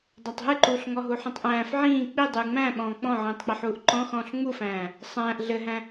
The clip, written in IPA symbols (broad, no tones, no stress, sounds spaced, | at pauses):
dˤ æ tˤ ɦ ɨ ǃ uː ɬ ŋ ɔ ɦ u ħ ĩ tˤ ʔ æ̃ː f ʕ ĩː k͡p i dˤ ɨː ŋ͡m æ̃ː ɓ ɔ̃ː k͡p ɔ̃ ʕ ĩː tˤ k͡p e ħ uː ʔ ǃ ɔ̃ x ɔ̃ː ɬ ŋ͡m u f æ̃ː | sˤ æ̃ː ʔ ɮ ɘ ɦ æ̃